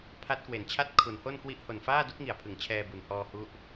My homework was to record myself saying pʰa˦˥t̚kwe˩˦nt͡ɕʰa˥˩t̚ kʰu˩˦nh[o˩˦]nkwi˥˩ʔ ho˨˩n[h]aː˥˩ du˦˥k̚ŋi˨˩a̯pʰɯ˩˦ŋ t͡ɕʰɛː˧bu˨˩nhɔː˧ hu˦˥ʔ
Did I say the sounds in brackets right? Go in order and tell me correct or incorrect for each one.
incorrect: o˥˩, incorrect: f

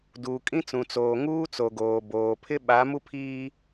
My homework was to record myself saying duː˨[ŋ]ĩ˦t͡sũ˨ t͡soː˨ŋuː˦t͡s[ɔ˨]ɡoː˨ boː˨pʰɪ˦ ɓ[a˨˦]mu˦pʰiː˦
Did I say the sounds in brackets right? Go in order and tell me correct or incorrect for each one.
incorrect: kʼ, incorrect: o˨, correct

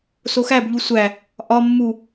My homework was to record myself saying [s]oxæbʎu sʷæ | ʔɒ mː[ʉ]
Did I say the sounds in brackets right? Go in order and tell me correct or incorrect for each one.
correct, incorrect: u

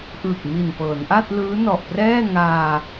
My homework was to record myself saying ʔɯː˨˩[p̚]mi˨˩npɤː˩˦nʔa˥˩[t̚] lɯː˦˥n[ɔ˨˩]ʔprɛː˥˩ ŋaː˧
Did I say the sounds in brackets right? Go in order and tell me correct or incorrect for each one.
incorrect: k̚, correct, correct

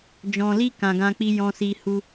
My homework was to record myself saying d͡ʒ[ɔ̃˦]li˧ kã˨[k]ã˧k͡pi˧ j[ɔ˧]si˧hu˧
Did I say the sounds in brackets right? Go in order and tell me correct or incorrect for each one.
incorrect: ɔ̃˨, incorrect: ɡ, incorrect: ɔ̃˧

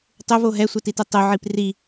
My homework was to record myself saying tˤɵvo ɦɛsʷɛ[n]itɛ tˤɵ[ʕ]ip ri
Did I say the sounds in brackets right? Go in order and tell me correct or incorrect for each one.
incorrect: t, correct

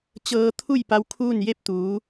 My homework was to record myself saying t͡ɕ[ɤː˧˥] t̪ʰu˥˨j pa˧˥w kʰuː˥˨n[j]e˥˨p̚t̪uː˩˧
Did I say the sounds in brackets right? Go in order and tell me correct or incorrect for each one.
incorrect: ɤː˧, correct

